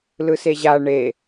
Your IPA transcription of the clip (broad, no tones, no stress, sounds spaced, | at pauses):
l ɯ s e ʑ a ɳ e